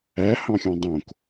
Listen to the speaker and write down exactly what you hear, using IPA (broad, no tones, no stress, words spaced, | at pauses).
æ hɑ̃xʲɑ̃dˤõk